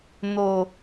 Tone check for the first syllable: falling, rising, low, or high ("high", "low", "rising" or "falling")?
low